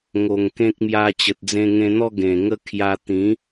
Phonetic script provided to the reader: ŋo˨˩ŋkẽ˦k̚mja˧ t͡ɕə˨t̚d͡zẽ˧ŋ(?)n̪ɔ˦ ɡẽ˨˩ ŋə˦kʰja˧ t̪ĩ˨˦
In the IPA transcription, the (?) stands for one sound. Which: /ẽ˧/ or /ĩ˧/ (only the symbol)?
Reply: ẽ˧